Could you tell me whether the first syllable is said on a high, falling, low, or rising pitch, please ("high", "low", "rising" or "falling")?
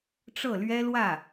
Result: falling